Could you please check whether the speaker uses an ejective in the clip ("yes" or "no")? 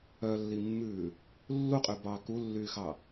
yes